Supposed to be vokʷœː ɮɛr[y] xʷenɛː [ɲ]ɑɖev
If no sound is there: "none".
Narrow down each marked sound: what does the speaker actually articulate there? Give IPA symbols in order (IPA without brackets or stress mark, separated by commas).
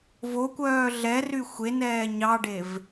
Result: y, ɲ